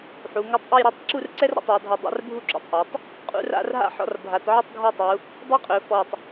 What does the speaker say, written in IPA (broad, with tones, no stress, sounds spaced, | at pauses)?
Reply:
ħ u˩˧ ŋ ɵ˧ tˤ ʔ u˥˧ j ɾ ɔ˥˧ tˤ ǁ u˥˧ r ǀ ɛ˥ r ɾ ɔ̰˩˧ tˤ ɒ˩˧ dʱ ɔ˧˩ dˤ a̰˥˧ r bʱ u˥˧ ǁ ṵ˧˩ tˤ ʔ a˩˧ tˤ | qʼ ṵ˥˧ r a̰˥˧ r ɦ a̰˥˧ ħ ɔ̰˧ r bʱ a˩˧ t ʕ ɵ˥˧ tˤ ɡʱ ɒ˥˧ tˤ u˩˧ | dˤ ɛ˥ qʼ ɵ˩˧ f ɔ˧˩ tˤ